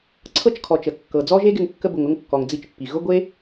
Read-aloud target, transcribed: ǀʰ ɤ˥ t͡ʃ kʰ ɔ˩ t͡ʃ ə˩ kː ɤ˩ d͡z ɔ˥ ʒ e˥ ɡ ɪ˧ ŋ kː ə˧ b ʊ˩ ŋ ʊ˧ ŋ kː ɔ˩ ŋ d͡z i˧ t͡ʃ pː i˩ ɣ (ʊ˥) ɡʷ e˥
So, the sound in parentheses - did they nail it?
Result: yes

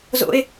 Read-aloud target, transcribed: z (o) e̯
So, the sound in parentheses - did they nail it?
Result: no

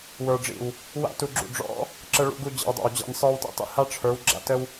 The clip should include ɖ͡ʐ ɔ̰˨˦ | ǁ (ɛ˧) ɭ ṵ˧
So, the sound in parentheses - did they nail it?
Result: no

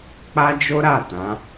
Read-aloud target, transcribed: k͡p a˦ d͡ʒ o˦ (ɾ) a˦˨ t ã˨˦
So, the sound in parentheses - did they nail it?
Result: yes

